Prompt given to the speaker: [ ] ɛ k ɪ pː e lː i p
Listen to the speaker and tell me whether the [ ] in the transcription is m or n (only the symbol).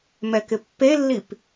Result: m